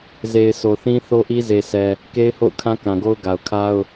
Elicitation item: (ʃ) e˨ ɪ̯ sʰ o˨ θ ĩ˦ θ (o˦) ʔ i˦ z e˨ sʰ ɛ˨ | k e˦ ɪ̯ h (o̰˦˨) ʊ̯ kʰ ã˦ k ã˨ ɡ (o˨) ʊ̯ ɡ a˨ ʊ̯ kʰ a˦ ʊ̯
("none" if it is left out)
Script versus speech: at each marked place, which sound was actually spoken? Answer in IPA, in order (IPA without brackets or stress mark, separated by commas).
z, o˦, o̰˦˨, o˦